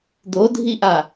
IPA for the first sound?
d̪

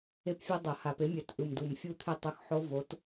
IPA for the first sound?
e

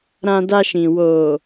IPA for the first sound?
ɾ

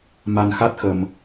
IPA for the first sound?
m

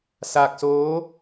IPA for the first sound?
s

